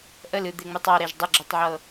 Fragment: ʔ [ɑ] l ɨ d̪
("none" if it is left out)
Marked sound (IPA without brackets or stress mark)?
ə